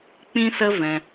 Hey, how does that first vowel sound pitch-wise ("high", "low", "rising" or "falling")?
high